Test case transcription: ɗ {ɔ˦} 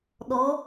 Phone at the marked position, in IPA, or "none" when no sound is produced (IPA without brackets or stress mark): ɔ˨˦